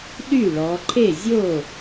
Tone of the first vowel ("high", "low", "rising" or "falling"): falling